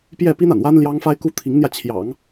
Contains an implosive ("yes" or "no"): no